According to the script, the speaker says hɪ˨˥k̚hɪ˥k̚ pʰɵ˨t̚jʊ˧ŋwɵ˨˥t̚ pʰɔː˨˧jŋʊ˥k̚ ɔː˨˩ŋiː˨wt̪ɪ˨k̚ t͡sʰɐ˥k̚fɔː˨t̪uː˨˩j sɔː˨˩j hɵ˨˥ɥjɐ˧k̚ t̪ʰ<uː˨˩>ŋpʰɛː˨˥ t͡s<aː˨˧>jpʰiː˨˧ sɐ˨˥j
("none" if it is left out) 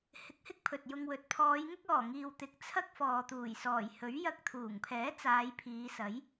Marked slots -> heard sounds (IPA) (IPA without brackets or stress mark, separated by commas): uː˨˩, aː˨˧